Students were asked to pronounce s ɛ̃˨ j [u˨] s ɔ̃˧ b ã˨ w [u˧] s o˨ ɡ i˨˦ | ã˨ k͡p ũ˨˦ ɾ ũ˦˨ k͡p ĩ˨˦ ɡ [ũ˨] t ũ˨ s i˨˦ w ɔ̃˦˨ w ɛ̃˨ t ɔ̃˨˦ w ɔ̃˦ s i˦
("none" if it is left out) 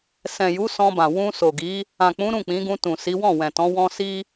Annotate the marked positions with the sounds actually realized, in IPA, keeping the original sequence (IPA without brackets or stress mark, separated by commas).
u˨˦, ũ˧, ũ˧